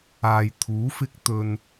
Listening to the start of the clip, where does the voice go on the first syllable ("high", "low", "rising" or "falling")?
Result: low